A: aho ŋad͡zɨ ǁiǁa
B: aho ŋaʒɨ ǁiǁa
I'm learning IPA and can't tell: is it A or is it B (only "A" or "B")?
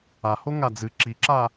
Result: A